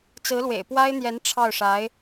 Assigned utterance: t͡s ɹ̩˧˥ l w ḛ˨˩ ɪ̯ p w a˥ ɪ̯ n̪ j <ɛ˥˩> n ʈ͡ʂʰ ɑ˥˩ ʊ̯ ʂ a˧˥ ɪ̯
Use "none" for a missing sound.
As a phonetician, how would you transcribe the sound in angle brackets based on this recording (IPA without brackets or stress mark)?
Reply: ɛ˧˥